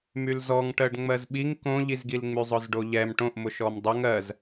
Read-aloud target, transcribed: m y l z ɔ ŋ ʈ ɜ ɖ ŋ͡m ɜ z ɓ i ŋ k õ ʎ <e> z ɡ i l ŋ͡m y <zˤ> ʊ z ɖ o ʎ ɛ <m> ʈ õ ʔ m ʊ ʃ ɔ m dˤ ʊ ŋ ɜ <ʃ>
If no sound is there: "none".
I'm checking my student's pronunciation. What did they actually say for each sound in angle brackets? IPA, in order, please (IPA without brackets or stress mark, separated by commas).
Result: i, zˤ, m, z